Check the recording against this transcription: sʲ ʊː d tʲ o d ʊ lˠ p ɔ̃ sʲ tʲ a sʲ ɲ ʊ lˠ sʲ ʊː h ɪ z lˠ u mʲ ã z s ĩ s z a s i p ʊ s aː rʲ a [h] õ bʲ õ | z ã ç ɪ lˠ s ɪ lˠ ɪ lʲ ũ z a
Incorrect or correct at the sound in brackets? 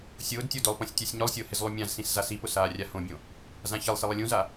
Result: correct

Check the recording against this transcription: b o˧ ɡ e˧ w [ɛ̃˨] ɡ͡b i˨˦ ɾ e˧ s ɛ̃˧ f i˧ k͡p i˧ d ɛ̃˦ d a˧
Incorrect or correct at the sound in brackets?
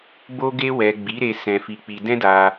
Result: incorrect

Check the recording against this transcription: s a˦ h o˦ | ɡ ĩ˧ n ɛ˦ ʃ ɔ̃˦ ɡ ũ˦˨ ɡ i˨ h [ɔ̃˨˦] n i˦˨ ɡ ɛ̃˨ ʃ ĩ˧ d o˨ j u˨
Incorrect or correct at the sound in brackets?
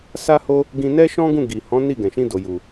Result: correct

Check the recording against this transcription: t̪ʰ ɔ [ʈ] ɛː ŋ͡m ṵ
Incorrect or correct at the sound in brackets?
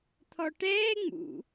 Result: correct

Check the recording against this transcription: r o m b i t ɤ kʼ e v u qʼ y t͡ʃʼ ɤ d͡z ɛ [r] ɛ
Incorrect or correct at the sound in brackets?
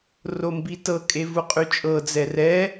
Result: correct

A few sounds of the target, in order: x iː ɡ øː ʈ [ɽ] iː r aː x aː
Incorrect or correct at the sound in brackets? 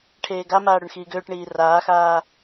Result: incorrect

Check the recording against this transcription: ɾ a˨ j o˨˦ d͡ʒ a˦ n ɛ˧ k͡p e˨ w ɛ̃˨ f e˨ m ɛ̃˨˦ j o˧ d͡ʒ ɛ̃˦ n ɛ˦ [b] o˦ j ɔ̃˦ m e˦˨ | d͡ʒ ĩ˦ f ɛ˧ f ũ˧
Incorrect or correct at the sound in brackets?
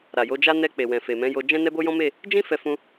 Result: correct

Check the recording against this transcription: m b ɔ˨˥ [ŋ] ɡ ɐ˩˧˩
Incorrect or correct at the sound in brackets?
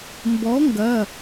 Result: correct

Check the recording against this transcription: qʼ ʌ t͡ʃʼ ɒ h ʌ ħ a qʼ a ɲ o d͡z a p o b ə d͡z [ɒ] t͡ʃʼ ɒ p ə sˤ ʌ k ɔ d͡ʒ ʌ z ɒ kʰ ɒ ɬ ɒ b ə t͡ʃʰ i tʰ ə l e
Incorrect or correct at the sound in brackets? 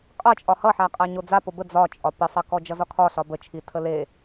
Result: correct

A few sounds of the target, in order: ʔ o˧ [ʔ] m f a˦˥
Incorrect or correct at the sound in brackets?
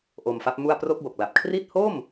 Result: incorrect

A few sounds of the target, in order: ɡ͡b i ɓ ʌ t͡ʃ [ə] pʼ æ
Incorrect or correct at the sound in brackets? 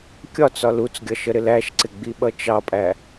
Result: incorrect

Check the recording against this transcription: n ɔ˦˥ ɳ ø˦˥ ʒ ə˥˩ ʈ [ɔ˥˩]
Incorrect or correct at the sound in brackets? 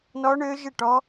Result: incorrect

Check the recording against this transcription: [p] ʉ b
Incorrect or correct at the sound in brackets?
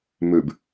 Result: incorrect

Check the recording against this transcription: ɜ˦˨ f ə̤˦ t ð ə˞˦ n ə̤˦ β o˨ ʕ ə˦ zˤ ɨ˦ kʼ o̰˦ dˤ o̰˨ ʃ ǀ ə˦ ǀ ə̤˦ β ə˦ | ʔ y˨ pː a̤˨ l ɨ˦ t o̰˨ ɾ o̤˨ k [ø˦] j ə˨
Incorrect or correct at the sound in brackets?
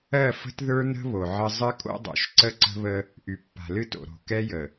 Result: incorrect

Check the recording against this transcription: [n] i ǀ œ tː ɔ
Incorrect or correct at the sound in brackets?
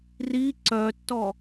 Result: incorrect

